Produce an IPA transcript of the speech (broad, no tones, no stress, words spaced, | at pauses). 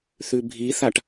θʉbʱiθaʈ